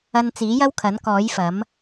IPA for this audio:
ɐ˧n t͡siː˨˥jɐ˥wkʰɐ˨˥n kɔː˨˥jfɐ˨˥m

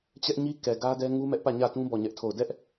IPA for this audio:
t͡ɕɛ˦ʔɲi˦kɛ˨ ɡä˦dɛ˦ ŋu˦mɛ˦ʔ pä˦˨ɲä˦˨tũ˦ bɔ˦˨ɲɛ˦ʔtʰo˦˨ʊ̯ dɛ˦ʔ

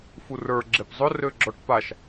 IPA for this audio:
furə˞ ɡ͡ǁepzˤʊ røɡ͡ǁɔʈpaʃ

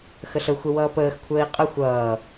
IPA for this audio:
xəɬə xʷəwʌːpəːx kʷʰəːi̯qʼə xʷʌː

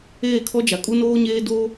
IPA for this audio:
eː˦˨kʰɔ˦d͡ʒa˨ kʼu˦noː˦ɲeː˦ do˦

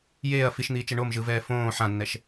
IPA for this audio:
jeːɐ̯ fiʃn̪iːt͡ʃɛ ɳomʒɯvɛː fõː ħãnːɛʃ

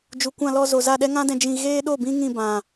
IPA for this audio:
d͡ʒu˨kʷã˧ lɔ˧ zo˨za˦˨ ɗɛ˦ŋã˦dɛ̃˧ d͡ʒĩ˧ɣeː˦ɗo˦˨bĩ˦ ŋĩ˦˨bã˨

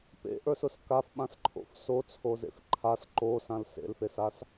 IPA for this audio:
pḛʔə˞sʊs kafɓãsǃʰo̰f sot͡sʰozḛf ǃʰas ǃosãl sḛlfesas

